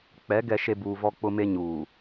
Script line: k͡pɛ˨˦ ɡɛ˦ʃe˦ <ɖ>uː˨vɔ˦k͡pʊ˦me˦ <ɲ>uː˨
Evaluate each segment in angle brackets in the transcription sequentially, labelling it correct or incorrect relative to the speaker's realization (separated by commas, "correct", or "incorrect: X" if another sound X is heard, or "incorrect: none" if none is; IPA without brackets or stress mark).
incorrect: b, correct